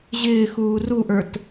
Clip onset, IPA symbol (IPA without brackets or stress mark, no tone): ʑ